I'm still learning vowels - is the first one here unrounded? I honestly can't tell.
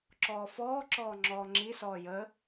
no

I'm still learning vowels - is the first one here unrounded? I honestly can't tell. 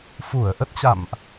no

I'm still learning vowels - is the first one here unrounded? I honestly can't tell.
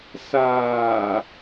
yes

